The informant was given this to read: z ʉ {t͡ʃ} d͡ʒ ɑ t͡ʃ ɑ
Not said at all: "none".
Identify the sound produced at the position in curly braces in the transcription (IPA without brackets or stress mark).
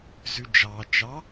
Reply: none